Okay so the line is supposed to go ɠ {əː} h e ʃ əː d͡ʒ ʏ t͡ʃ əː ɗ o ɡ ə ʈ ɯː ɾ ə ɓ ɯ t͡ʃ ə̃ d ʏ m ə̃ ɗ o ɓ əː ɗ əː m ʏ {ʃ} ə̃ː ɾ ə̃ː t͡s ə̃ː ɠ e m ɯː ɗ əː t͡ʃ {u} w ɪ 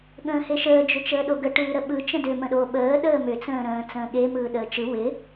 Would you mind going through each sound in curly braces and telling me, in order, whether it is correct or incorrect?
incorrect: ə̃ː, incorrect: t͡s, incorrect: ɯ

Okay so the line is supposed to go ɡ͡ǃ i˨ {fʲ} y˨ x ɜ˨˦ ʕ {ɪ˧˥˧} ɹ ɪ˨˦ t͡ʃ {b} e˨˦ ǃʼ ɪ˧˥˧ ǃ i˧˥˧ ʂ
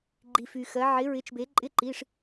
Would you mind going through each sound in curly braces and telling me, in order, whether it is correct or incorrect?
incorrect: f, incorrect: ɪ˨˦, correct

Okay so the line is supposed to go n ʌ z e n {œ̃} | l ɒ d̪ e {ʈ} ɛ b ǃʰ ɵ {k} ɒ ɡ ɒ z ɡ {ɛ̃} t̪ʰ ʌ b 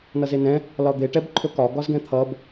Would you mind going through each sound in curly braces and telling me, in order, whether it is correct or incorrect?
incorrect: ɛ̃, correct, correct, correct

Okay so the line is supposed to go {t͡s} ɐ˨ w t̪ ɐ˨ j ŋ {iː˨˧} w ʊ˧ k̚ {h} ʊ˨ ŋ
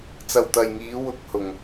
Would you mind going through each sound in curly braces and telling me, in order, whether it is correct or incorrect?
correct, correct, correct

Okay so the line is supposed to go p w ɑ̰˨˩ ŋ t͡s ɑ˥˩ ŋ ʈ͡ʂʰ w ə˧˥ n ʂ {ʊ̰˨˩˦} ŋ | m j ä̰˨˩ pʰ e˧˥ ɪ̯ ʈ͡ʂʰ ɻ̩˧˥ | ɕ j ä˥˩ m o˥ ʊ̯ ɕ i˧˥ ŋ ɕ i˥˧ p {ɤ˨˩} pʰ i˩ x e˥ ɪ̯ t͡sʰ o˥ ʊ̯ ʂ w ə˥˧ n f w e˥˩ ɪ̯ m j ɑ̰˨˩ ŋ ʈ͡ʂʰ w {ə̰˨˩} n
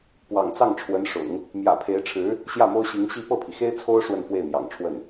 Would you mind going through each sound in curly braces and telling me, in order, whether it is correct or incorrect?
correct, incorrect: ɤ˥˩, incorrect: ə˥˩

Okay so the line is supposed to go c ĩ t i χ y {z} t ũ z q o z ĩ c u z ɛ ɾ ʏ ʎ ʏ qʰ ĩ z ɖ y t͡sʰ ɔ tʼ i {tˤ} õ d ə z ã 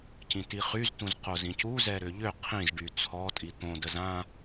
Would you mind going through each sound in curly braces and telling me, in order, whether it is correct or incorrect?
correct, incorrect: t̪

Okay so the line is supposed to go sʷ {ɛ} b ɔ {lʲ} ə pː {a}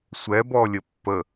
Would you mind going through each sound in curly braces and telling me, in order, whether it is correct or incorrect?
correct, correct, incorrect: ə

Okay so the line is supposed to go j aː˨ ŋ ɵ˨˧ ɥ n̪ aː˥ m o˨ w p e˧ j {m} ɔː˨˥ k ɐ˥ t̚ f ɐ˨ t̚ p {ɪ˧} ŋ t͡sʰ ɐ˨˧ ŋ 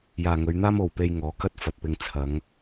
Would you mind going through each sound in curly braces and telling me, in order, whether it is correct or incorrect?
incorrect: ŋ, correct

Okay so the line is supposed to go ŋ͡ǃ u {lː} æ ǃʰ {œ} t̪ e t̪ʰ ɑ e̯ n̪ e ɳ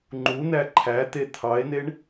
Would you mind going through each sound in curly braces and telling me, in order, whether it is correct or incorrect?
incorrect: n̪, incorrect: æ

